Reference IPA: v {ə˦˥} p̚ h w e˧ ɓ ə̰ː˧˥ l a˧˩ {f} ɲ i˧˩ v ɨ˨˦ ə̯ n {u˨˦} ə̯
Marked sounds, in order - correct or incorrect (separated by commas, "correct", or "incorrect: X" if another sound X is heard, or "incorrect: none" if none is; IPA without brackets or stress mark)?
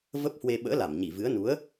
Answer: correct, incorrect: m, correct